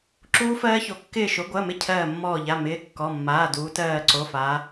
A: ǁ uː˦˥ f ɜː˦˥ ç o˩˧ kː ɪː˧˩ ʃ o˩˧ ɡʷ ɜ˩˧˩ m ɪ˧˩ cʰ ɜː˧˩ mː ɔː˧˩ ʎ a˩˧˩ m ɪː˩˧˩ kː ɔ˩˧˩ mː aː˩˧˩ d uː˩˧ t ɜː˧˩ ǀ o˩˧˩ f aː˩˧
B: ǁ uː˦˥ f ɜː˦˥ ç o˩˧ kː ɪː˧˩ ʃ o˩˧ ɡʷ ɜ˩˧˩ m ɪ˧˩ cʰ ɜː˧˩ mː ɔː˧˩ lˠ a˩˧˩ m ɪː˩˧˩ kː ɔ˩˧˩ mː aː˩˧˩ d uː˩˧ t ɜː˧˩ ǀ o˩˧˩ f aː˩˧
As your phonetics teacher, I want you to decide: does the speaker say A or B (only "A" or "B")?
A